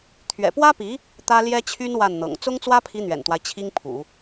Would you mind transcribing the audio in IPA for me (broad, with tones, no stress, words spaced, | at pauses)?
t̪ʰɥɛ̰˨˩pwä˥pi˧˥ | t̪ä˥ ljɛ˥t͡ɕʰy˥n wa˥˩nn̪ɤ̰˨˩ŋ t͡sʊ˥ŋt͡swä˥pʰi˧˥ n̪ɥɛ̰˨˩nt̪wa˦ɪ̯ t͡ɕʰi˥ŋpʰṵ˨˩˦